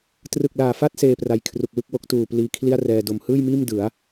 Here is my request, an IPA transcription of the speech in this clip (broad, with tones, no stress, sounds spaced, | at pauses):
t r ɯ˨˩ k̚ l aː˨˩ f a˦˥ t̚ s eː˧ p r a˧ j kʰ r u˨˩ k̚ w ɯ˥˩ k̚ w o˦˥ k̚ t uː˨˩ p l iː˧ kʰ l i˥˩ a̯ r ɛː˧ d o˨˩ m h ɯː˥˩ j m iː˥˩ m d ɯ˩˦ a̯